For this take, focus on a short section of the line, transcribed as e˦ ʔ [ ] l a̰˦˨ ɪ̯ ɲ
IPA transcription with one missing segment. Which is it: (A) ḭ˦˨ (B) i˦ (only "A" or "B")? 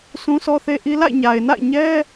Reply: B